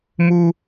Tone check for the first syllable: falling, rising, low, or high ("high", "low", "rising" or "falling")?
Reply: high